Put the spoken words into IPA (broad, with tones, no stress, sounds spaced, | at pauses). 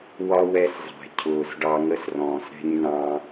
w ɒ˦ w ɛ˦ s zˤ æ̤˨ cʰ ʊː˨ s ɖ ɑ˨ ŋ ə˦ s r ɔ̃ː˨ s ɾ ɛ̤˦ ɲ n ɑ̃˦